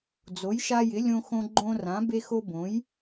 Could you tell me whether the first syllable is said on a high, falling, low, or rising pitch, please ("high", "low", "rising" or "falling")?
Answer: rising